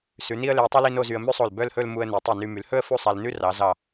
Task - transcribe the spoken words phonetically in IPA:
sʉ˩˧ni˥ə̯le˧ə̯tˤy˥l i˥no˥˧zy˧ə̯ mʉ˥sˤo˧˩l bœ˥˧lhɵ˥˧l mu˧ə̯ ne˩˧tˤi˧˩ny˧ my˩˧lhɵ˥ə̯ fu˥˧sˤæ˧l nʉ˥ rɑ˩˧ zɑ˧˩

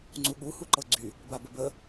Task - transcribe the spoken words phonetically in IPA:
ŋ͡ǀuɠu huǃɤɡ͡ǀy | babəbə

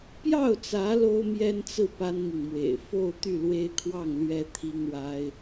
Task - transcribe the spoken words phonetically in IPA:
pjɑ˥˩ʊ̯t͡sä˧˥ lo˥ʊ̯mjɛ˥nt͡sɹ̩˥˩ pa˥nmi˨ŋmwḛ˨˩ɪ̯ fo˥˧ʊ̯ t̪y˥˩lwe˥ɪ̯kʰwɑ˥˩ŋ lɥɛ˥t̪ʰi˥ŋɻa˥ɪ̯

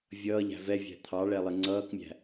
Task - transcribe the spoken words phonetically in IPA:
vʲʌːʎæ̤ vɛvʲæ̤ t̪ʰɑɭɛlˠɪ ŋ͡ǀʌːkmʲæ̤

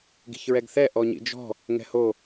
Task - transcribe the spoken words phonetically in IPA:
ɡi̤çɹɛɡθɛ ʔɔɲḭd͡ʒɔ̤ | ŋɛ̤ho

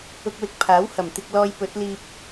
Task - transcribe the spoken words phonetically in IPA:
ʊ˧k̚wɪ˧k̚pʰaː˨˥w hɐ˨˩mt̪ɪ˧k̚ lɔː˧j pɵ˨˥t̚liː˧p̚

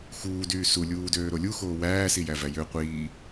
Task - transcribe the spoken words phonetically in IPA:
xuːdyː sulʲuːdøːɾo lʲuxoː wæːsijævæ jø qʷiː

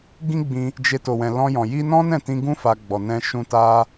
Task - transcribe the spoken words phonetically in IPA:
ɡĩ˦ɡ͡bĩ˧ | d͡ʒe˧ to˨wɛ̃˨lɔ̃˧jɔ̃˨ ji˧nɔ̃˦ nɛ̃˦˨tĩ˧ɡũ˦ fa˧ ɡ͡bɔ˨nɛ̃˧ ʃũ˧ta˦

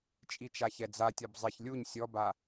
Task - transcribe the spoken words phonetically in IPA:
t͡ʃʼit͡ʃaçɛd͡za tʲɔbzˤiç lʲuɲ sʲɔba

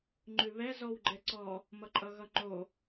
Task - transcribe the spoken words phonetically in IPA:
ŋ͡ǃʉβɛ zɔwɡ͡ǃɛǀɔ | mʌǃʼʌɣʌŋ͡ǃo

